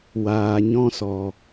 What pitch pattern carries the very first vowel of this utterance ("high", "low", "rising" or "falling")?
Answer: low